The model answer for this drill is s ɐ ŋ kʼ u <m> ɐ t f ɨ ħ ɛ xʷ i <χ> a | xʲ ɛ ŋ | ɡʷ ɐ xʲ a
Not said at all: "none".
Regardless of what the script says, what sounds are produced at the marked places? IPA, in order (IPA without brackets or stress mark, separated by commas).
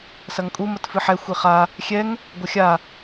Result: m, χ